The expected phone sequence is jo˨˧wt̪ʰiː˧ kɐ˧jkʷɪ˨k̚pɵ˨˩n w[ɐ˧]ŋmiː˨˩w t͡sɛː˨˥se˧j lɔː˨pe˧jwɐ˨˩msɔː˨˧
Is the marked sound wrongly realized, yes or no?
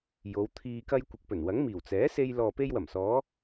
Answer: yes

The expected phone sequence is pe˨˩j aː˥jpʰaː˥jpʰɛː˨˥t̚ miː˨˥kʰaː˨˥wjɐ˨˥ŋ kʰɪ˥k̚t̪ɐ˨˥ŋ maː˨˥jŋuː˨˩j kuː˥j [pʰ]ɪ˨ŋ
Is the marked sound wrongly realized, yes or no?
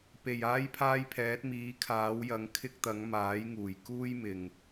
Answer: yes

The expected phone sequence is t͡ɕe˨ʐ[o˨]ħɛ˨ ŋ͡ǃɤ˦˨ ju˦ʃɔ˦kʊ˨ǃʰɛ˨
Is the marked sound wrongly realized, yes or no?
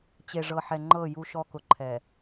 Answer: yes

